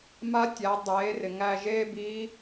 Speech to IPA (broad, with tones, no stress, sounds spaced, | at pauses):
m a˧˥ tʲ æ˩˧ dˤ eː˩˧ r ɪ˩ ŋ æ˧ ʒ eː˥ b i˧˥